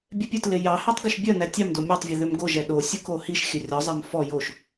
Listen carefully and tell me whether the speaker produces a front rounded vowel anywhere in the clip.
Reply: yes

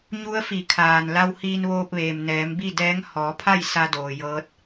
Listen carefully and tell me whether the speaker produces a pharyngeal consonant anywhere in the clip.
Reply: no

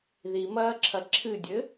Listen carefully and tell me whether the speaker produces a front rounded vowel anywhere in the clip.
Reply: no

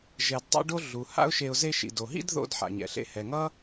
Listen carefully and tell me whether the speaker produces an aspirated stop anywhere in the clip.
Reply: no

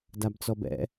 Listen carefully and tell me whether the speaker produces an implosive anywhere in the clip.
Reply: no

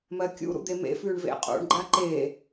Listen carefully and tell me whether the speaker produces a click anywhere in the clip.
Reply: yes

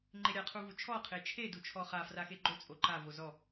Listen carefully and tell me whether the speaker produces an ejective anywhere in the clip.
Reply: yes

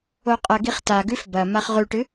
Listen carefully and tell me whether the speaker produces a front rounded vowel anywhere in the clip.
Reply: no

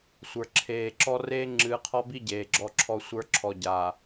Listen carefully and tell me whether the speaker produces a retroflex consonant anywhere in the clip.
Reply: no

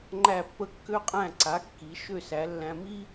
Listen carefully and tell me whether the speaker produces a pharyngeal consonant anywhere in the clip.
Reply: no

